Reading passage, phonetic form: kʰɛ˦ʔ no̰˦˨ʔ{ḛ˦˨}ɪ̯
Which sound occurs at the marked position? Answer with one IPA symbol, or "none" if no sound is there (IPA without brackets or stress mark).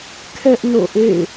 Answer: ḛ˦˨